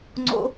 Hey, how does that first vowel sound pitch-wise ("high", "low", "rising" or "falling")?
high